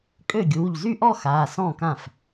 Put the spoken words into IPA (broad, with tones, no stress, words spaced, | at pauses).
kʼø˥˩ɡʲuː˩˧˩ʎzy˥ʔɔ˥˧ xaː˩˧˩sɔ̃˥˩kã˥˩f